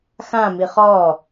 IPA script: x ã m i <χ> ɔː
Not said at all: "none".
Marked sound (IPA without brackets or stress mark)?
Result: χ